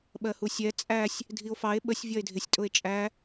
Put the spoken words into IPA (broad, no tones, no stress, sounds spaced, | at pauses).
ɓ ɜ h u sʲ ɛ t͡sʼ æ sʲ | dʱ i o̯ f ɑ e̯ ɓ ə sʲ vʲ ɒ e̯ dʱ ɪ sʲ tʼ ʊ e̯ t͡ʃʼ æ